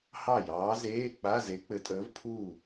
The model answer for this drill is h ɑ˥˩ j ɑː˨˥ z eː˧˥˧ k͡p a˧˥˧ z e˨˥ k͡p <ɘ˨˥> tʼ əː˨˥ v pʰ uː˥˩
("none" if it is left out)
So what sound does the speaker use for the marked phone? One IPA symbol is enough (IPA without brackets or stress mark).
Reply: ɘ˨˥